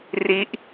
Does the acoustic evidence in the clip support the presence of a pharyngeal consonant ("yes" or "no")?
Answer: no